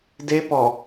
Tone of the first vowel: high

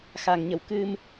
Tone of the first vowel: low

